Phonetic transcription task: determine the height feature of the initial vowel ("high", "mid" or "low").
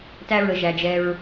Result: low